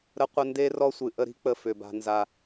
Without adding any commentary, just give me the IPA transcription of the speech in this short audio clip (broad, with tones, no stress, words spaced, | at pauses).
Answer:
ɾə˦qʷə˦ nde˦ rɔ˦sʷɨ˨ʔə˦ɾi̤˦ k͡pə˦fʏ˨ba̤˦nza˦